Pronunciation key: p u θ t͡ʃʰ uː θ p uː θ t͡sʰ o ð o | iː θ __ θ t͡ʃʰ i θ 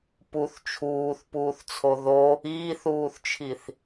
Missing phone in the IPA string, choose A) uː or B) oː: A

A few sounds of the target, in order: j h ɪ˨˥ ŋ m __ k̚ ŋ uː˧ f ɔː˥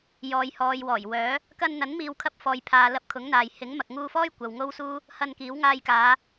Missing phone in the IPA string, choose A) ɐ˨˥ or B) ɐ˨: B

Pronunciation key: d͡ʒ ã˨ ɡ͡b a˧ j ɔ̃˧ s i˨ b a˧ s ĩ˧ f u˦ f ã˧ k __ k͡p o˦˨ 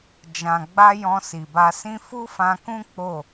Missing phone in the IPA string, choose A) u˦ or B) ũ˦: B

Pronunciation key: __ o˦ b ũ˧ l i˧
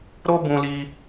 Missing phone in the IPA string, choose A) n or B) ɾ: B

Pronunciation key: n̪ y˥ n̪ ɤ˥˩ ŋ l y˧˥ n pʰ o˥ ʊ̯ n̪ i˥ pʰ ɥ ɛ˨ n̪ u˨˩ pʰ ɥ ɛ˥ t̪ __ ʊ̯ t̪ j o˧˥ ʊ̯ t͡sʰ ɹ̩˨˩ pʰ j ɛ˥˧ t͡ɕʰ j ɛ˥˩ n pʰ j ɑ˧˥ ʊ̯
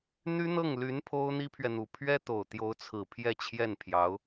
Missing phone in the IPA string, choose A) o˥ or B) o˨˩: B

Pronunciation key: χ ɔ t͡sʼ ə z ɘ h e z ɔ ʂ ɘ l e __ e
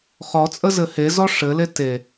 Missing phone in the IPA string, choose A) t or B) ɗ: A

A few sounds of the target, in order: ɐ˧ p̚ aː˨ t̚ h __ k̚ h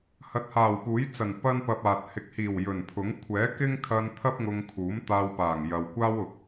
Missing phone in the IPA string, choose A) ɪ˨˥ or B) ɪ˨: A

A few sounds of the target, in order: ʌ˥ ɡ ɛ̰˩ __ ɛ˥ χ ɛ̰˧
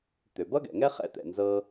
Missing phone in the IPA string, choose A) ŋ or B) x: A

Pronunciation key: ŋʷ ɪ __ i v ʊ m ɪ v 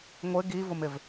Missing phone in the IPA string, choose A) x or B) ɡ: B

